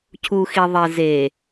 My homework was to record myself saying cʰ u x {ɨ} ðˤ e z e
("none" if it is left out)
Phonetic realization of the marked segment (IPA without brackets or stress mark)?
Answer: i